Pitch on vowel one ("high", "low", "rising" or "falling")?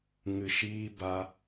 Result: low